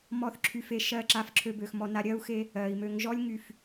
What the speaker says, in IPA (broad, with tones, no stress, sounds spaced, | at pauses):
m ɔ˦˨ θ ǁʰ y˧ f e˧ ʃ ɜ˦˨ ǁ a˦˨ f ǁʰ ø˧ b ø˨ x m ɔ˧ n a˧ ɾʲ ɜ˦ u̯ x e˦ | ɜ˨ i̯ m ø˨ ŋ ʒ ɔ˦ lʲ ŋ y˦˨ f